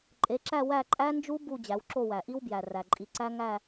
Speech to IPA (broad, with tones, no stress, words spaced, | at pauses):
ǃʼe˩˧ǁæ˦˨ wæ˦˨ǃʼæ˦˥nd͡ʒu˦˥ bu˦˨ d͡ʑæ˩˧wǁo˦˨wæ˩ʔi˦˥w bjæ˩ræ˩ǃʼi˩˧ ǀæ˦˥ ŋæ˦˨